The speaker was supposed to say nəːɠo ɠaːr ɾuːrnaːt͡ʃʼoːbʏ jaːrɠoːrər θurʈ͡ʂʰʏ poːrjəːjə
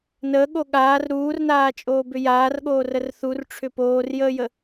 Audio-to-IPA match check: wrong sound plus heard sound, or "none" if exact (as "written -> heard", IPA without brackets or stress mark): none